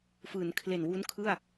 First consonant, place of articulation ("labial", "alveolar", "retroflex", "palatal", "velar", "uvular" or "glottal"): labial